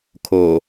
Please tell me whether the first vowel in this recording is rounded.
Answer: yes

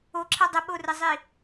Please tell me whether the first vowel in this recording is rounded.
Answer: yes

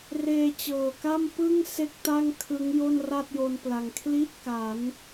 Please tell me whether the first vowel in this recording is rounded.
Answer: no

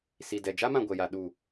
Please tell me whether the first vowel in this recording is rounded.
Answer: no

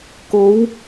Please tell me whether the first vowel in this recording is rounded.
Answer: yes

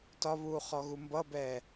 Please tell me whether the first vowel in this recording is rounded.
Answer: yes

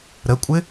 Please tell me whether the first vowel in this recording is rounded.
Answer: no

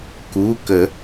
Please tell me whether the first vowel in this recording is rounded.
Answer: yes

